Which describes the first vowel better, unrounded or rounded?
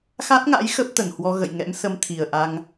unrounded